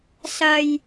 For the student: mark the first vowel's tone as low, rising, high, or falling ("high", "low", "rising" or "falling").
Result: low